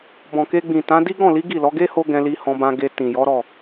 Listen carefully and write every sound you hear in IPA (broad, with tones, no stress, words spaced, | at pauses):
bɔ̃˨ke˧ɡ͡bĩ˨ tã˨˦di˦ ɡɔ̃˦˨li˨˦ ɡi˦˨lɔ˨˦ ɡe˦ ho˦ɡɛ̃˧ li˧hɔ̃˧bã˧ɡe˧ tĩ˨ jɔ˨˦ ɾɔ˦˨